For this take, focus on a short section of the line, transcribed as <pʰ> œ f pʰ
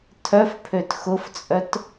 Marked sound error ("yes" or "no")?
yes